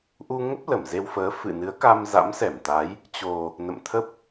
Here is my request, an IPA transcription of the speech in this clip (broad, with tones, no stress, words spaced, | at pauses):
ʔu˧ŋə˦˥p̚ lə˧˩mze˧wfəː˨˦ fɨ̰˧˨nɨ˨˦ə̯ka˧m za̰˧˥msɛ˧˩mt̪a˨˦j | t͡ɕo˨˩ | nə̰˧˨mt̪ʰə˦˥p̚